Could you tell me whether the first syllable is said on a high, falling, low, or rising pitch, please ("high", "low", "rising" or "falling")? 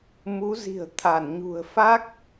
rising